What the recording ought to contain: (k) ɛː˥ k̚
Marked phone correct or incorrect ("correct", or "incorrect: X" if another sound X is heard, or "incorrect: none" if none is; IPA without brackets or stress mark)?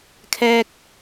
incorrect: kʰ